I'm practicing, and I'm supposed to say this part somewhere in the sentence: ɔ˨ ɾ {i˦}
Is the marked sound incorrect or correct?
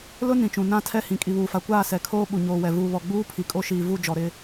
incorrect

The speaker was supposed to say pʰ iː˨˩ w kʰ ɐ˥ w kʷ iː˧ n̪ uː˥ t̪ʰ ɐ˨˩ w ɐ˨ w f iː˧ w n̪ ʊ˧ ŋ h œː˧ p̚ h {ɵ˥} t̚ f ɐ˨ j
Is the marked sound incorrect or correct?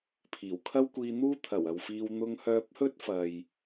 correct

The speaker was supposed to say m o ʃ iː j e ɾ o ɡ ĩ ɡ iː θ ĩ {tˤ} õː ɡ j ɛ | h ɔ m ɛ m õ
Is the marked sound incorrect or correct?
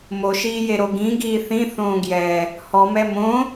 incorrect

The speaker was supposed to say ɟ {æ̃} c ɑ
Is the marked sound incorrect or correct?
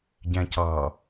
correct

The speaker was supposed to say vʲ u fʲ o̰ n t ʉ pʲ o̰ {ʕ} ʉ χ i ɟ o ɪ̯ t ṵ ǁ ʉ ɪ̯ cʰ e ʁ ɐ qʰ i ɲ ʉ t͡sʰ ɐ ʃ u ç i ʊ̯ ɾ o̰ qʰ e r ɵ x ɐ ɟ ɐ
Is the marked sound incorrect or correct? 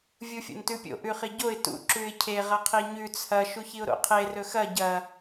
incorrect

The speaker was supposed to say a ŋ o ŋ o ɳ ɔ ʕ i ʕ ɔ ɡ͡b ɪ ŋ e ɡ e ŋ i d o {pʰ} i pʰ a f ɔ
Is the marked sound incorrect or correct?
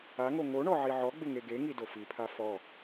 incorrect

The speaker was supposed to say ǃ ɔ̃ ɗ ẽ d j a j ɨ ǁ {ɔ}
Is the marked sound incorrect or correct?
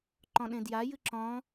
incorrect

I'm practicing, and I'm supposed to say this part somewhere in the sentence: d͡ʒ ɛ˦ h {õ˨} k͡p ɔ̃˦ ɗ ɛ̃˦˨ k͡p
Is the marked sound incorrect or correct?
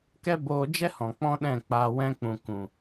incorrect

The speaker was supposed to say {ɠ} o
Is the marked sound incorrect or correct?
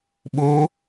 incorrect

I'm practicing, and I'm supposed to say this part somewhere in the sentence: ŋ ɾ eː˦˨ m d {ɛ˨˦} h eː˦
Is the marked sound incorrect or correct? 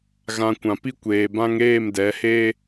correct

